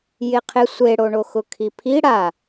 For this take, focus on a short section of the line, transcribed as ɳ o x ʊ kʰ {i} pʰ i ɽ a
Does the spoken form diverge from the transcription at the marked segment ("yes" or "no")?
no